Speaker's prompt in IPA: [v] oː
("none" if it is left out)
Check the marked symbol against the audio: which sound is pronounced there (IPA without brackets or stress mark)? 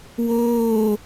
w